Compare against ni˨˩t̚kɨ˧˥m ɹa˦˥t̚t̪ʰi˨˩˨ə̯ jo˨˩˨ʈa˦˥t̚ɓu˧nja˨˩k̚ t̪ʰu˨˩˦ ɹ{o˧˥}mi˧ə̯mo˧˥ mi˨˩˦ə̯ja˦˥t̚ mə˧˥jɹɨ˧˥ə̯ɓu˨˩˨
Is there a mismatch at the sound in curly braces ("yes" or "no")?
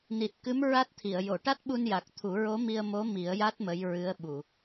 no